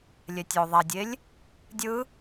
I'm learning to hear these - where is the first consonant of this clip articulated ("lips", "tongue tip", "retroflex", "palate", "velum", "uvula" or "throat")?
tongue tip